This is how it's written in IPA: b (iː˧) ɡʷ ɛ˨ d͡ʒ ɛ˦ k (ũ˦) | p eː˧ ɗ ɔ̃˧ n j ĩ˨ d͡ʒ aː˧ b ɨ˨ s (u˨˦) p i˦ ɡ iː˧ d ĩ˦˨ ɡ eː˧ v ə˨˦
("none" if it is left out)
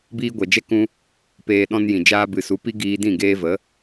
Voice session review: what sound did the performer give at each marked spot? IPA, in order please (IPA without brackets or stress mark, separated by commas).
iː˧, ũ˦, u˨˦